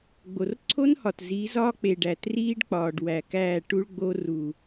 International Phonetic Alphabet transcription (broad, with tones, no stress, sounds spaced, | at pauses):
ɡ͡b o˨ r ǀʰ o˦ n h ɒ˨ t z i˨˦ z ɒː˦ k͡p e˨ ɖ æ˨ t r iː˦ ɖ k͡p ɒː˨ ɖ w æ˨ k æː˦˨ ʈ u˦ ɭ ɡ͡b o˦ r u˨